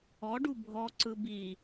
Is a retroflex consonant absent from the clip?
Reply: no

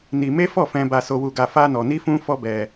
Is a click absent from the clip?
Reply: yes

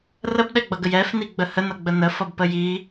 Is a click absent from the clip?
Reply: yes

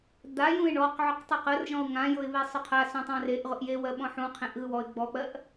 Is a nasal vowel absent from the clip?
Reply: no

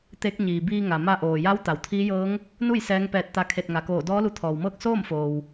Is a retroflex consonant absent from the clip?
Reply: yes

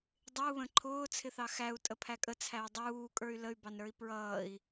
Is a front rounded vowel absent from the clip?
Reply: no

